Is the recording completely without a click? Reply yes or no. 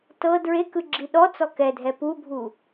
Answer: no